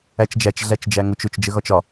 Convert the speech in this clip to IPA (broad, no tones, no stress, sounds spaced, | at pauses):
æ t͡ʃ d͡ʒ æ t͡ʃ ɮ æ t͡ʃ d͡ʒ æ ŋ ʊ t͡ʃ ʊ t͡ʃ d͡ʒ ə ɣ ɒ t͡ʃ ɒ